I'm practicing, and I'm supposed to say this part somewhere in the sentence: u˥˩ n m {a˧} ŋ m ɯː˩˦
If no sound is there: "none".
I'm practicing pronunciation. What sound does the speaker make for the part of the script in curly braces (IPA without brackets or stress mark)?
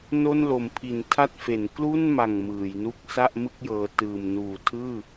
a˨˩